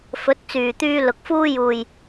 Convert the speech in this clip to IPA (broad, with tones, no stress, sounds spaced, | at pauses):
f ɵ˨˥ t̚ t͡s yː˨ t̪ yː˧ l ʊ˨ k̚ f uː˧ j uː˨ j